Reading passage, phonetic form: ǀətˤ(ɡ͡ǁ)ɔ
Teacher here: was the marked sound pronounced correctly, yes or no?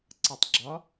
yes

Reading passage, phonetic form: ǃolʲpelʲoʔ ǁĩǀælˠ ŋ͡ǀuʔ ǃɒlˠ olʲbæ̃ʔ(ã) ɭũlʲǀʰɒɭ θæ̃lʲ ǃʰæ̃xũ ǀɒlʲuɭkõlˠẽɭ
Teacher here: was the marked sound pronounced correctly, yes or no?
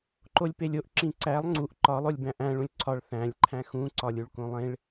no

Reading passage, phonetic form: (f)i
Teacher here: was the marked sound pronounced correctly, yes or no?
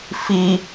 yes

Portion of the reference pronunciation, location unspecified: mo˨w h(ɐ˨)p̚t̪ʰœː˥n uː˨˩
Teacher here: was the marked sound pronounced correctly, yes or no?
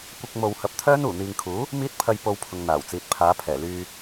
no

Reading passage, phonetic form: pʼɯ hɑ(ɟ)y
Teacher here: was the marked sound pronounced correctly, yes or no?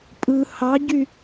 yes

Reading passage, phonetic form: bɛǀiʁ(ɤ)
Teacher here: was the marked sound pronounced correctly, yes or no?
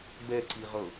yes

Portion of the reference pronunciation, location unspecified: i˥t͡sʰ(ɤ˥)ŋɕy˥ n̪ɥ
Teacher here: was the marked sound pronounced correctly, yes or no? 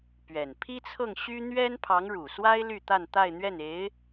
no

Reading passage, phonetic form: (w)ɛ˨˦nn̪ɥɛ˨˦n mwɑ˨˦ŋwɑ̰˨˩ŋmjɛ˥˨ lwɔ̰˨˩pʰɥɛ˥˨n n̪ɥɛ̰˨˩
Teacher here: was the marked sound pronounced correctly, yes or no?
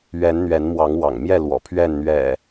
no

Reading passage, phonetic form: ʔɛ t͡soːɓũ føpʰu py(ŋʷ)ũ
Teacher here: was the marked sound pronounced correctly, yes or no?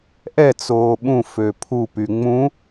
no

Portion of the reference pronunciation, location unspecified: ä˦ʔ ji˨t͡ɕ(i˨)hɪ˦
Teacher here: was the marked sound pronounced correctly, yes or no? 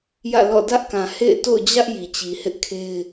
yes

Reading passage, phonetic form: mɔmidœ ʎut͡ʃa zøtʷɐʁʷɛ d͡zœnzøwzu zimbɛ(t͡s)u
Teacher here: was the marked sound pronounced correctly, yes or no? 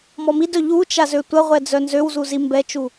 no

